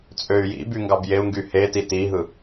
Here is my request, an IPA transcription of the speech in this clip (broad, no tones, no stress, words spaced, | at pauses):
t͡sʼøy̯jḭby ŋɡɑbjeu̯ŋɡy heti tiɦɯ